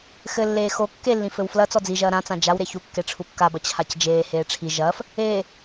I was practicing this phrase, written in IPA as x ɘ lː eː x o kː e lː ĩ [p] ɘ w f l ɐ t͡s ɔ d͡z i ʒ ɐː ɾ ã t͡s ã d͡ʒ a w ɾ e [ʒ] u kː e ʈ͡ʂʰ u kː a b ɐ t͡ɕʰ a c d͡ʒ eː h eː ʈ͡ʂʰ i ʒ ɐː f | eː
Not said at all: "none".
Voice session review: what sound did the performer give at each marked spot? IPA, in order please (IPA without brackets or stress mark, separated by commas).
f, ç